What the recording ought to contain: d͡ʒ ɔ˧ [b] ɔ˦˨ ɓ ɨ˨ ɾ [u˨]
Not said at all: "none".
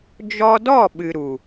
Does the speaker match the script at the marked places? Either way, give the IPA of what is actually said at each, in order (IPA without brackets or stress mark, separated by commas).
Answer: d, u˨